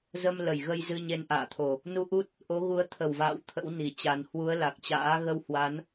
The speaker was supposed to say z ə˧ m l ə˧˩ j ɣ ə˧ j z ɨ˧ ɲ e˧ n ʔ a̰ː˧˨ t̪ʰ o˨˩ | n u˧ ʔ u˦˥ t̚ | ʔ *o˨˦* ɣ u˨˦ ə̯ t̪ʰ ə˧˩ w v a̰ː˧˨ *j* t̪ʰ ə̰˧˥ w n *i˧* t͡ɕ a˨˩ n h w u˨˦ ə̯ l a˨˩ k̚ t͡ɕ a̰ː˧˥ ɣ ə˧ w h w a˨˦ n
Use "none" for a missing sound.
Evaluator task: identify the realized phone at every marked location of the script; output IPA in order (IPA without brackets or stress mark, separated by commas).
o˨˦, w, i˧˩